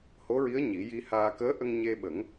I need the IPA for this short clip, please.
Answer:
ho˧˥ɹi˧˥ə̯ ɲi˨˩˦ ji˧haː˧ kəː˧˥ʔə˧ŋ ɲe˧ɓə˨˩˦ŋ

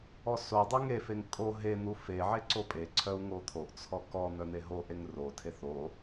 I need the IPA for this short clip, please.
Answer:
ɔsodˤe ŋefeŋ kʼo ɦe n̪ufeʕe ǀopʼeǀʰœu̯ ŋot̪ʰoʔt͡sʰɔ kɔ n̪œn̪eɦoʔeŋ rotʰeθ o

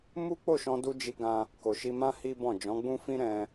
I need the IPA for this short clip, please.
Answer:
mu˦k͡po˦˨ʃɔ̃˧du˧ d͡ʒi˦ɡã˦ | ko˨ʃi˧mã˦ hi˦bɔ̃˦˨ d͡ʒɔ̃˨˦ɡ͡bũ˦fĩ˦ɾɛ̃˧

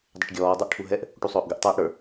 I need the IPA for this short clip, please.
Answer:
dˤɪʈɡʲɔː dˤə˞ʔʈʰuɦɛʔ | ʈusˤʊːʔɡəʔ tˤɛːʔɽə˞

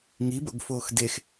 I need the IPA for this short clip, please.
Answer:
ŋibo̰ɡ foːxdex

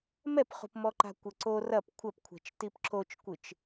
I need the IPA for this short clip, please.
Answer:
mɛpχṳpmɔǃa̤ kʷɘǀo rɐp kʷʰɐpkʷʰɛ̤t͡ʃ tipǁot͡ʃkʷɨt͡ʃ

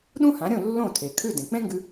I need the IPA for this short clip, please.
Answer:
ɗũ˥hã˩˥ɾʲõ˥˩ lːõ˥˩tʰe˩kʰʉ˥˩ dẽ˩k͡pẽ˥ŋɡʉ˧

